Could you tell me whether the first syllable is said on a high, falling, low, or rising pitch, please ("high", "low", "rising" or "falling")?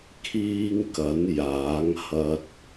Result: high